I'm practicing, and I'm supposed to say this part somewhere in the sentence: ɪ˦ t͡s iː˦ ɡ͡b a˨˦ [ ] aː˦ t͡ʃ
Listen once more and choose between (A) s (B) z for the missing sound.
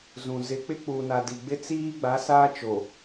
A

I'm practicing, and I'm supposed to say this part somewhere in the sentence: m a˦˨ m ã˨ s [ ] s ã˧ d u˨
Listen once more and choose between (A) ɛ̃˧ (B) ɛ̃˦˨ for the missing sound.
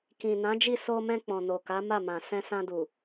A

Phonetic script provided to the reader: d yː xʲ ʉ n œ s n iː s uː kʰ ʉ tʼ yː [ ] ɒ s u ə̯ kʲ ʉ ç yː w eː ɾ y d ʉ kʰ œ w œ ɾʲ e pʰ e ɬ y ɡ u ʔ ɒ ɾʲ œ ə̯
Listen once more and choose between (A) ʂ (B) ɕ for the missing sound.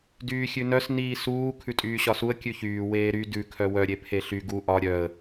B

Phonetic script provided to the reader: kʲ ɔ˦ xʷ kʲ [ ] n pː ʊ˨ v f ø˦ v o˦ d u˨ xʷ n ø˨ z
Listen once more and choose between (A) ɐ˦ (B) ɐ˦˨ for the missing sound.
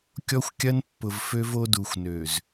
A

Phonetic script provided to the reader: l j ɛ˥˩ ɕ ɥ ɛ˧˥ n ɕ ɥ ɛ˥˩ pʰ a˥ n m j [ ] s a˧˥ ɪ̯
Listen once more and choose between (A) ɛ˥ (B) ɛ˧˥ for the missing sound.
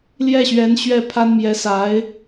B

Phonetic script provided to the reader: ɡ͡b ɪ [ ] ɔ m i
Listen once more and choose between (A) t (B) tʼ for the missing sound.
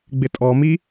B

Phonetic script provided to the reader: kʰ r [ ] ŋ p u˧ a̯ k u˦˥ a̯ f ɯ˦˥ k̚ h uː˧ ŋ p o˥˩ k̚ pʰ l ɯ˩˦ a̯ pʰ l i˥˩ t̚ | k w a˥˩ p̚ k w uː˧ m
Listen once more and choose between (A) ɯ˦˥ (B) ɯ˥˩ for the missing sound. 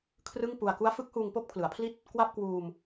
B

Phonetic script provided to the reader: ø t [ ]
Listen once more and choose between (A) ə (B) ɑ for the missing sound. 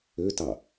B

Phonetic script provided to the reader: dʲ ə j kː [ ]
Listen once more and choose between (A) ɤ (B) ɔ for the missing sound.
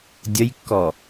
B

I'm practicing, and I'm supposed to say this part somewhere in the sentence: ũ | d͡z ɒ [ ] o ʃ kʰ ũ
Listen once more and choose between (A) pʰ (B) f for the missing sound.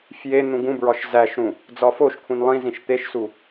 B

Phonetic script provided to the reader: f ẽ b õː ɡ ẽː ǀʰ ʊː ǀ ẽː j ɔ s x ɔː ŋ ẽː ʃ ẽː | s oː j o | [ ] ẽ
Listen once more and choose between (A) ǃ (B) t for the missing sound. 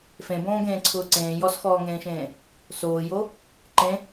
A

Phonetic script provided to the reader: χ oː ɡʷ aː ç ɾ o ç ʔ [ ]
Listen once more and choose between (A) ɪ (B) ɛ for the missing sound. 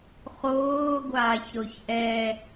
B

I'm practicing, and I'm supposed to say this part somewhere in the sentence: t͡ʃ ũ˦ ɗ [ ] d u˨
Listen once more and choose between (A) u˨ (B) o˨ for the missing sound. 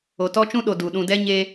B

